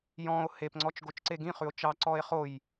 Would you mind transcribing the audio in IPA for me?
j ɔ̃ o̯ h e p ŋ͡ǀ ɔ t͡ʃ ɡ o t͡ʃ ǀ e ɡ ĩ χ ʉ o̯ t͡ʃ ɑ ǀ ɔ e̯ χ o j

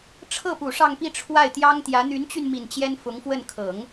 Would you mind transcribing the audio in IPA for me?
ʈ͡ʂʰ ɤ˥˩ p u˨˩ ʂ ɑ˥˧ ŋ p i˥˧ ʈ͡ʂʰ w a˥˩ ɪ̯ t̪ j ɑ˥ ŋ t̪ j ä˧˥ n̪ y˧˥ n t͡ɕ y˧ n m i˨˩ n t͡ɕ j ɛ˥ n f ʊ˧˥ ŋ f w ə˥˩ n kʰ ɤ˨˩˦ ŋ

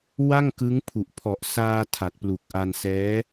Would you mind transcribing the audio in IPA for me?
w a˥˩ ŋ k ɯ˦˥ ŋ pʰ u˨˩ ʔ pʰ ɔ˨˩ ʔ s aː˧ tʰ a˨˩ t̚ p l u˨˩ k̚ ʔ a˧ n s ɛː˦˥

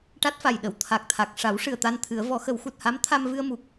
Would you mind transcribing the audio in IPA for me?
ʈ a˦˥ t̚ f a˨˩ j ɗ ə˨˩˨ w t̪ʰ a˨˩ k̚ t̪ʰ a˨˩ k̚ ʂ a˨˩˦ w ʂ ɨ˨˩ ə̯ t̪ a˧ n t̪ʰ ɨ˨˩˦ ə̯ v ɔ˨˩˦ x ə˨˩˦ w x u˨˩ t̚ h a˧˥ m t̪ʰ a˧ m v ɨ˧ ə̯ m u˨˩ k̚

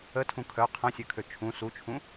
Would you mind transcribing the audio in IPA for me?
ə tʰ ũ kʰ œ qʰ ɐ̃ sʲ ø kʰ ø t͡ʃʰ ũ s u t͡ʃʰ ũ

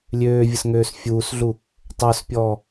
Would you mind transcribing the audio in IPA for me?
lʲ øː vʲ ə s ŋ øː s fʲ uː s ɮ u | tˤ œ s pʲ ɔː

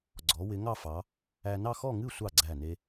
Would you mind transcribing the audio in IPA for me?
ɡ͡ǀ ɔ˩˧ w ɪ˩˧ ŋ ɑ˥˧ f ɑ˩˧ | æ˧ n ɑ˥˧ x ɔ˥˧ ŋ ɨ˥˧ sʷ ɑ˧˩ ɡ͡ǀ æ˧˩ n e˧

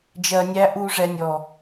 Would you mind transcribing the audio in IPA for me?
d͡ʒ ɜ˧ nʲ æ˦ ʔ u˦ ʐ ɛ˧ nʲ ɔ˨

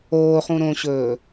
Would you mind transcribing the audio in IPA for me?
oː χ ũ ɾ õ ɕ ɵː

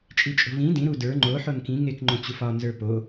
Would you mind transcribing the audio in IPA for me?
t͡ʃʼ i t͡ʃʼ o̤ v ĩ d ĩ ɾ u d ə˞ ŋ͡ǃ o ħ o n k ĩ ŋ e k ŋ͡ǃ õ t͡ɕ u f ɒ n z ə˞ p o

